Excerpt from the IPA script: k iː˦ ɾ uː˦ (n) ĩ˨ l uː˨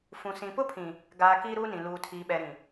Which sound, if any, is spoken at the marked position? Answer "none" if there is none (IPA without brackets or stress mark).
n